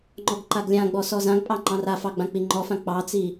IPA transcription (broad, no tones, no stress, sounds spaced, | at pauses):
ŋ͡ǃ ɔ ɡ ǃ a ɡ lʲ ã ɡ͡b ɔ s ɔ z ã ɡ pʼ ɑ ŋ͡ǃ ɑ̃ r a f ɑ ɡ͡b ã k͡p i ŋ͡ǃ ɔ f ã k͡p ɑ t͡s i